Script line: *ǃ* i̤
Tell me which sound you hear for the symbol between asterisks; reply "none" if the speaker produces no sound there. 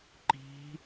ǃ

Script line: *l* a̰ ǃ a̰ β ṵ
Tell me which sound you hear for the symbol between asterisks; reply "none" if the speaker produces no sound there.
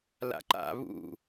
l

